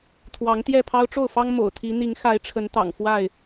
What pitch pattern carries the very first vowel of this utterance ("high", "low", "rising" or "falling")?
rising